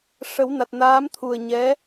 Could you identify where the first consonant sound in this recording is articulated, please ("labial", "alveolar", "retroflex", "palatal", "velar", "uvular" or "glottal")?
retroflex